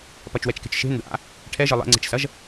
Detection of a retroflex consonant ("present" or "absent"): present